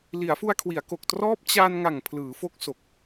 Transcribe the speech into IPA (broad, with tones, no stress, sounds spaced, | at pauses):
l i˩˦ a̯ f u˧ a̯ kʰ w i˩˦ a̯ k o˨˩ k̚ t r ɔː˦˥ p̚ t͡ɕ a˧ n ŋ a˨˩ ŋ pʰ l ɯː˩˦ f o˦˥ k̚ s o˨˩ k̚